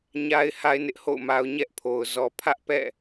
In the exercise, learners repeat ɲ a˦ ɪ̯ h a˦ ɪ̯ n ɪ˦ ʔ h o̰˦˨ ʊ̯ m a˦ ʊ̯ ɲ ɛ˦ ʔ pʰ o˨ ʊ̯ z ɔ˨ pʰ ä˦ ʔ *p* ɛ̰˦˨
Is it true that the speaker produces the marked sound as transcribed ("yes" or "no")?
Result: yes